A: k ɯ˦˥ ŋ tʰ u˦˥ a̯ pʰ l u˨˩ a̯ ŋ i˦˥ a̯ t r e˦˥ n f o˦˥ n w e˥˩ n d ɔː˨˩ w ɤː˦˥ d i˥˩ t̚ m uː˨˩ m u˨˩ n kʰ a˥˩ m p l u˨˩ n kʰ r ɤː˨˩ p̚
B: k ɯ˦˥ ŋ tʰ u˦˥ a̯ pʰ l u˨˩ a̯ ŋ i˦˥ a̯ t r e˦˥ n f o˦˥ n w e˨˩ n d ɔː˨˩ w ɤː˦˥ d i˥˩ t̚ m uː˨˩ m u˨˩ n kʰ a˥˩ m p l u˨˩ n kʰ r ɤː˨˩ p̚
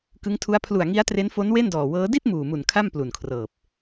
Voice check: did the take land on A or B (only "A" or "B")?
A